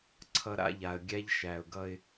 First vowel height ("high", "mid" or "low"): mid